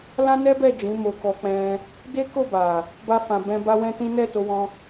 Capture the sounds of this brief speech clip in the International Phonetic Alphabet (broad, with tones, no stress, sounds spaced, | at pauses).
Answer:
l ã˦ n ɛ˦ b ɛ˦˨ d͡ʒ ĩ˨˦ m o˧ k ɔ˧ k͡p ɛ̃˧ | d e˦ k o˦˨ b a˨ | b a˧ f ã˨ b ɛ̃˧ b a˦ w ɛ̃˦ t ĩ˦ n ɛ˦˨ t o˧ w ɔ̃˧